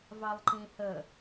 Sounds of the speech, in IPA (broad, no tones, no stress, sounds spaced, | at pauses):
v ɑ lˠ ǃ ĩ h ə